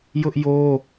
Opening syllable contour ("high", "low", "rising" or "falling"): high